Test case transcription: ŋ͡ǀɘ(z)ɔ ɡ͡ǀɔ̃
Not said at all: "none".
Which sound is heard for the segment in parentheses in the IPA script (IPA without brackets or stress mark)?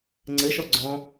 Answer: ʃ